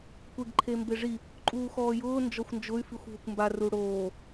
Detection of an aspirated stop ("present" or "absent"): present